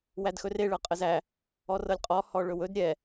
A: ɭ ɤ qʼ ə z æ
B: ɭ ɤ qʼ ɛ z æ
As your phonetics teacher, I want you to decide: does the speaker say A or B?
A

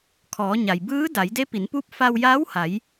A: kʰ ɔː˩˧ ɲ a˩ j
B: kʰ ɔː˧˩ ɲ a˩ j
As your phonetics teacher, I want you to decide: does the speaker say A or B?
A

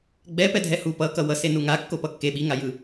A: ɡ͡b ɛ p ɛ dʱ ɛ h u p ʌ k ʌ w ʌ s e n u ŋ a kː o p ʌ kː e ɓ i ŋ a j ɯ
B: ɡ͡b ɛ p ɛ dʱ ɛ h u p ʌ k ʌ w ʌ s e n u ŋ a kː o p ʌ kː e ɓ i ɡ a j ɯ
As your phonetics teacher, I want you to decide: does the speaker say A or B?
A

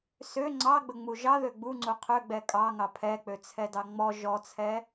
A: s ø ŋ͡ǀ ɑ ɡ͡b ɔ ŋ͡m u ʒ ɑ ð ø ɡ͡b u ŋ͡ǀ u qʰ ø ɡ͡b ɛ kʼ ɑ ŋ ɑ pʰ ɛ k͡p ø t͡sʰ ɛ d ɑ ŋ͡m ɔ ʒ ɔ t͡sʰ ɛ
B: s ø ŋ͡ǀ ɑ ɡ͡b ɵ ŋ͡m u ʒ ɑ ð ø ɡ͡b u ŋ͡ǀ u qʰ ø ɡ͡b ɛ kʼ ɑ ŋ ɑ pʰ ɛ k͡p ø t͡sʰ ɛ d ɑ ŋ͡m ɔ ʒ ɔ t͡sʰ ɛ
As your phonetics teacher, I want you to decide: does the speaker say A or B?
B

